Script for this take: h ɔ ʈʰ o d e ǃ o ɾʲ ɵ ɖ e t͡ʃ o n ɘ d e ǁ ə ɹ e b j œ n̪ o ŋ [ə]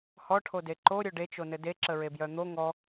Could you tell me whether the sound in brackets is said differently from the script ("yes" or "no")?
yes